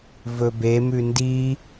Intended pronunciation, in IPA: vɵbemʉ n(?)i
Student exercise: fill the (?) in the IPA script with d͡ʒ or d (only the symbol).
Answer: d